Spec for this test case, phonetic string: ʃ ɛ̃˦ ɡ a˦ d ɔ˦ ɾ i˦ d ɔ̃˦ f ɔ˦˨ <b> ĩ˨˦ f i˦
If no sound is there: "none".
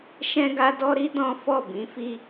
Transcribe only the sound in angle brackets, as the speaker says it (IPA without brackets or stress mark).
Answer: b